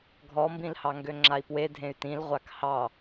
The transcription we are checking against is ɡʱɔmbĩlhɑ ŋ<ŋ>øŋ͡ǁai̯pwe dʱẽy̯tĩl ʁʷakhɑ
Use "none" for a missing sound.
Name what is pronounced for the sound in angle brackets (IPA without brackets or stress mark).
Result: ɡ